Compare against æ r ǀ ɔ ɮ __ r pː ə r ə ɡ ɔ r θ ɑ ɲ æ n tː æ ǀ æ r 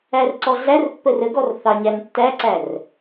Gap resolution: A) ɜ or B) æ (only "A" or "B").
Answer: B